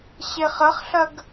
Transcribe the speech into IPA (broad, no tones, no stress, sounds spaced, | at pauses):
ɕ e χ ɐ χ ɬ ɐ ɡ